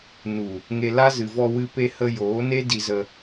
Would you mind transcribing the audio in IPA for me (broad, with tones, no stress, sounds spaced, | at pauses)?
n u˨ | ŋ e˧ l a˦ z ɨ˨ v ɔ˧ w ɨ˧ p e˧ h ə˧ j oː˨˦ n e˦ d i˧ z ə˧